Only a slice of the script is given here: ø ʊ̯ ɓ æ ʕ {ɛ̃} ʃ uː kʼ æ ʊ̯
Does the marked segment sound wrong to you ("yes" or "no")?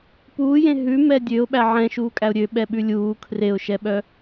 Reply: no